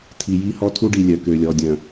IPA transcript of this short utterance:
tʰ i˨ j i˦ h ɔ˦ tʰ u˦ ɖ i˨ lʲ œ˨ k ø˨ lʲ ɔ˨ dʲ œ̃˨

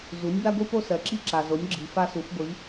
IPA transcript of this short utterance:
z u˩˥ nʲ b a˥ ɡʷ i˥ p o˥ s ɜ˩ ǁ i˥ ǁ a˩ z o˩˥ nʲ ɡ͡ǁ i˩ f a˥ s u˩˥ f ɡʷ i˩˥

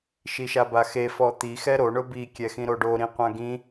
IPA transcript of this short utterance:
ʃ i ʃ a b a x e f ɔ t̪ i x ɛ ɾ o ɳ ʊ b i kʲ ɛ x ĩ ɾ o ɖ o ɾ ĩ qʷ ã ɡ ĩ

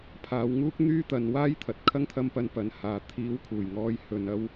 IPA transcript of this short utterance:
pʰ aː˨˧ w ŋ uː˥ k̚ n̪ yː˥ t̪ ɐ˨˧ n w aː˥ j t̪ʰ ɐ˨ t̚ kʰ ɐ˥ ŋ t̪ʰ ɐ˧ m p ɐ˨˧ n p ɐ˨˧ n h aː˨ t̪ʰ iː˨˥ w kʰ uː˨˩ j ŋ ɔː˨˧ j h ɵ˨ n ɐ˧ w

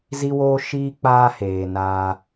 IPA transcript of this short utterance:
z i˦ w oː˦ ʃ iː˦ k͡p aː˦ h eː˨ n aː˧

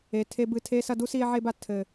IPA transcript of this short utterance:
e˨ tʰ e˧ b ɨ˦˨ tʰ e˧ s ɐ˧ d u˦ s i˧ e̯ ʕ e˧ b a˨ tʰ ɘ˨

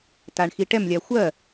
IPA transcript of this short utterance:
t a ɳ x i ʈ ɛ m lʲ a xʷ ɜ

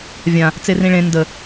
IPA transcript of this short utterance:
vʲ ã | t͡s e r ĩ ɭ ẽ n d ə

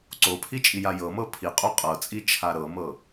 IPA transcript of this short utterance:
ǀ o pʰ i t͡ʃʼ i j a j ɤ m ɤ pʰ i qʼ o qʼ ɤ t͡sʼ i t͡ʃʰ a ɾ ɤ m ɤ

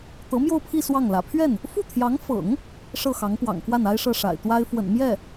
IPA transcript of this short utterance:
t̪ ɤ˧˥ m j o˥˧ ʊ̯ pʰ i˥˧ s w ɑ˥˩ ŋ l ä̰˨˩ pʰ ɥ ɛ˥˩ n | f u˥˩ t̪ʰ j ɑ˧˥ ŋ f ɤ̰˨˩˦ ŋ | ʂ ɤ˥˩ x ɑ˧˥ ŋ p w ɑ̰˨˩ ŋ k w a˥˩ n a˥ ɪ̯ ʂ ɤ˥˩ ʂ a̰˨˩ ɪ̯ t̪ w a˥ ɪ̯ f w ə̰˨˩ n m j ɛ˥˩

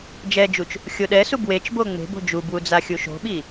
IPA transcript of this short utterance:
d͡ʒ ɛ d͡ʒ u t͡ʃ | xʲ o ɗ ɛ s u b w e t͡ʃ b o ŋ͡m e̤ b o̤ d͡ʒ u b w u d͡z a xʲ u ʃ o̤ ɓ i

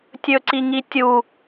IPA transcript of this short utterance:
tʲ ɵ ǀ i ŋ i tʲ u

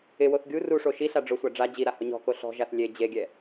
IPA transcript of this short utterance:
ɪ w o θ ɡʲ u r u ʂ o ʃ i ɬ a ɖ͡ʐ ʊ sʷ a ɖ͡ʐ a d͡ʑ i ɾ a h ʊ ɲ ɔ̤ k o ɬ ɔ̤ ʒ a θ lʲ e d͡ʑ e ɡʲ ɛ

